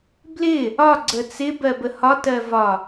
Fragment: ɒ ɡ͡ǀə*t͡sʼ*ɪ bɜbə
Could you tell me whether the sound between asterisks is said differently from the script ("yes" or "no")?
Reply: yes